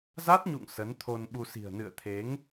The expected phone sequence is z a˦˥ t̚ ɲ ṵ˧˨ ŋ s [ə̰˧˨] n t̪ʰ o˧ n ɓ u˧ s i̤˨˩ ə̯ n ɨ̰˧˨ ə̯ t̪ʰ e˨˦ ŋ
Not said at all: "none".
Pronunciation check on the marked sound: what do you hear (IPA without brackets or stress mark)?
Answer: ə˨˦